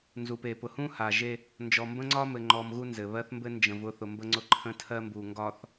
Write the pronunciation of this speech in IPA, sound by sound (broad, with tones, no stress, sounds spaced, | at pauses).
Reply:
n z u˨ p e˨ p ʊ˨ h ũ˦ h a˨ ʒ e˦ | n d͡ʒ ɔ˨ m b ə̃˦ ŋ͡ǀ ɒ˦ m ɘ˨ ŋ͡ǃ ɔ˨ m ɣ u˦ n z ɘ˨ β ɜ˦ θ m b ɘ˦ n d͡ʒ ə̃˨ v ʊ˦˨ θ ʊ˨ m b ə˦ ŋ͡ǀ ʊ˦ ǃʰ ə̃˦ tʰ ɜ˦ m b u˨ ŋ ɡ ɒ˨ θ